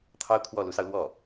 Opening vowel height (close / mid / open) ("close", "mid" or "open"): open